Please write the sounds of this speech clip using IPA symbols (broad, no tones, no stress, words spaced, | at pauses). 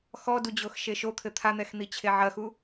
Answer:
xɔdud͡ʑox ʃeʃot̪ʰɘ t̪ʰan̪ɛxn̪i t͡ɕʰeʕɐxu